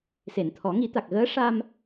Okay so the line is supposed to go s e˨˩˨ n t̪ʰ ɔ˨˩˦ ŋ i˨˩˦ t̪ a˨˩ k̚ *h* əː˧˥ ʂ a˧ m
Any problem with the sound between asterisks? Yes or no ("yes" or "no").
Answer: yes